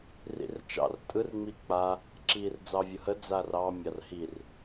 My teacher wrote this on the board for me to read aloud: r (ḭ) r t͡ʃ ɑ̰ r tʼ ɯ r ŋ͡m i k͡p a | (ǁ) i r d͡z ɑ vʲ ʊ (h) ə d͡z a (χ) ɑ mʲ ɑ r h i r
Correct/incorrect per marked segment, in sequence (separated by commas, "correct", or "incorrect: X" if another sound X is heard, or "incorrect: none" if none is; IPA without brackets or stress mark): correct, correct, correct, incorrect: r